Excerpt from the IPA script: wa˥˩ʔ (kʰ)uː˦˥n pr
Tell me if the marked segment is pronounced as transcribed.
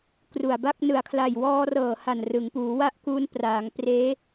no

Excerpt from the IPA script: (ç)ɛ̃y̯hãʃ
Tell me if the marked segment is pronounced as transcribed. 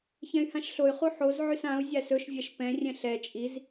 yes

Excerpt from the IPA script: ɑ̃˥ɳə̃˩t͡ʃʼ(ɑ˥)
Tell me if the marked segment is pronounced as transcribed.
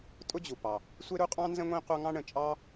yes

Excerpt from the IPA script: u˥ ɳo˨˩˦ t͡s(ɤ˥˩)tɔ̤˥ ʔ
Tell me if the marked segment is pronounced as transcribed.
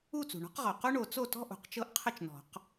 no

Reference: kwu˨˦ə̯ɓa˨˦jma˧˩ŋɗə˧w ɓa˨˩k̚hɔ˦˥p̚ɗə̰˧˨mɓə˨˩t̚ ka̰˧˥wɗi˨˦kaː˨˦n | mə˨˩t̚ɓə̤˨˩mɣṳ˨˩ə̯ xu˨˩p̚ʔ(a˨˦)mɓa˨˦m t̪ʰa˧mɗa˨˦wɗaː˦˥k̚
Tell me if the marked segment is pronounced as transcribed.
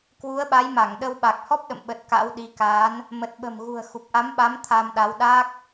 yes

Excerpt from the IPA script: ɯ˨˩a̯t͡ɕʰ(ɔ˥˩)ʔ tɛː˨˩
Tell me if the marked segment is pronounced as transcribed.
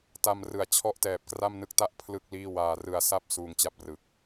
yes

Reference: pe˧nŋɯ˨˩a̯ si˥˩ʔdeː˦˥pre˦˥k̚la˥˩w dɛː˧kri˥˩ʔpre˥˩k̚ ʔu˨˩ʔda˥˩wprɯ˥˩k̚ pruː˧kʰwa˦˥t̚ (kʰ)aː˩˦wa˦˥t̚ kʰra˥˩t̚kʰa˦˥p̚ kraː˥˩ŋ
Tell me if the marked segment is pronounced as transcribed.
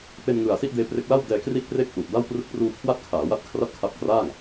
yes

